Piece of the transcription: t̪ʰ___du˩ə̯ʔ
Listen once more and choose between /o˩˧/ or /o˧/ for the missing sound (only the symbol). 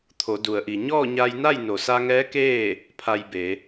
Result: o˩˧